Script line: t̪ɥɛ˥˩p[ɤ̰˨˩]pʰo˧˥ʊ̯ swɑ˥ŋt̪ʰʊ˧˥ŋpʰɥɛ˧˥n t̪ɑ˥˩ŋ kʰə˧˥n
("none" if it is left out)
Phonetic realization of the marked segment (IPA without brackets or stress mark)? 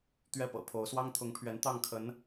ɤ̰˨˩